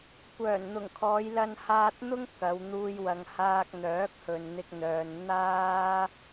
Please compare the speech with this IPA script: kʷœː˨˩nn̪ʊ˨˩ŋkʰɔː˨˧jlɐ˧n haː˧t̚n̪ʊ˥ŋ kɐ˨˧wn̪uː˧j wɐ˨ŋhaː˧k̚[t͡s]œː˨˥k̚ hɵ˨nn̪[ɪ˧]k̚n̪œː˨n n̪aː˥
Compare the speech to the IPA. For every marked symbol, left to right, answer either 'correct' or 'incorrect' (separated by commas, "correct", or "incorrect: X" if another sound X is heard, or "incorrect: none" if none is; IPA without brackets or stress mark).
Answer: incorrect: n̪, correct